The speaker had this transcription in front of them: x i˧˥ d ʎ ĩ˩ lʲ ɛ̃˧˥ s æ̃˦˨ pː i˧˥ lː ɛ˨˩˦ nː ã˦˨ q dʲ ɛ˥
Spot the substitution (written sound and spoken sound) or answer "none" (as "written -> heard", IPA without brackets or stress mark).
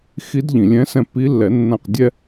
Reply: æ̃˦˨ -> ɛ̃˦˨